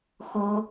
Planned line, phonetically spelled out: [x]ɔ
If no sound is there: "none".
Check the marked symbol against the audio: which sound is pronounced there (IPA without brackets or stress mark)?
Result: x